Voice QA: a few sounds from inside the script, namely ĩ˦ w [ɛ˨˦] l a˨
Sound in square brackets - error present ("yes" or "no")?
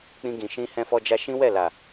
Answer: yes